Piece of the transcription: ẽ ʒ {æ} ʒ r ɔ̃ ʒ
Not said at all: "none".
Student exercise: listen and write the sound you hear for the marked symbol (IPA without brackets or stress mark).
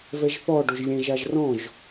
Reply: a